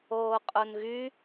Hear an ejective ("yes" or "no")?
yes